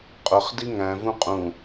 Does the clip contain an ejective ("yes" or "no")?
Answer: yes